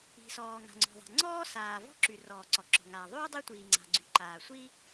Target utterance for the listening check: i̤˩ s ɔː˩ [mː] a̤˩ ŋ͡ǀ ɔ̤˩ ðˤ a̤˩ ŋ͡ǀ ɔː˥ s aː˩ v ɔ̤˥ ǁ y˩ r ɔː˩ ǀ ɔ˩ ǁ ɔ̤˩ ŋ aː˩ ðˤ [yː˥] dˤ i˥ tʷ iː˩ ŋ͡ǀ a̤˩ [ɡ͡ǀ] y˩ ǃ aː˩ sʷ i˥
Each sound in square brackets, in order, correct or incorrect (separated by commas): incorrect, correct, correct